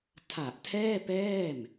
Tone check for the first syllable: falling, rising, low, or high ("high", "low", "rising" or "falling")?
low